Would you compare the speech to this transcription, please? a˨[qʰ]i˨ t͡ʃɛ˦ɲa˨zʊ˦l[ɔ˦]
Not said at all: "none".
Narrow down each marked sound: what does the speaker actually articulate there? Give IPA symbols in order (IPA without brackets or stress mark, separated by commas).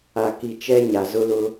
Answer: k, ʊ˦